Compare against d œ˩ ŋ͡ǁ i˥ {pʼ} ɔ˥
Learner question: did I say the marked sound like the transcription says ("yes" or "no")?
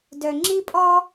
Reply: yes